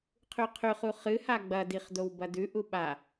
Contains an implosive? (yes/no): yes